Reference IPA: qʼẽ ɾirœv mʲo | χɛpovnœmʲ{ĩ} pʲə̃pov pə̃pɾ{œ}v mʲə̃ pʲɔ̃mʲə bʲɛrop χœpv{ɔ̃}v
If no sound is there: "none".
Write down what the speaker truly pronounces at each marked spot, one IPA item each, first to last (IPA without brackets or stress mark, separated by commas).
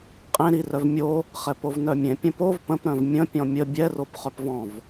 ẽ, œ̃, ɔ̃